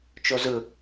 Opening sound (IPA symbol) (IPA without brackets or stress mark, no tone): t͡ʃ